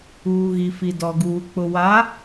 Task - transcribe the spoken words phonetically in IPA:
uː˨ ɣ i˨ f i˨ d ɔ˨ ɡ uː˨ k͡p ʊ˨ w a˨˦

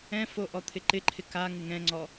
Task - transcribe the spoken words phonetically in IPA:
ɛ̃ f o ʔ ɔ t̪ʰ ɪ ǃ ɪ ǃʰ ɪ k a ŋ ɪ ŋ ɛ̃ ŋ͡ǀ ɔ

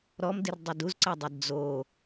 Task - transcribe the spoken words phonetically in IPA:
ɾ ɔ m d i r dˤ ɘ d u z ǀ ɐ dˤ e d d͡z o

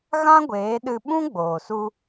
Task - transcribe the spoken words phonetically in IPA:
ɣ ã˦ ɡʷ eː˨˦ ɗ ɨ˧ ɓ ũ˦ ɡ͡b oː˨ s u˧

